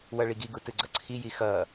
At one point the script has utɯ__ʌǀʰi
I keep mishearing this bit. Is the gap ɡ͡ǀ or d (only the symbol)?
ɡ͡ǀ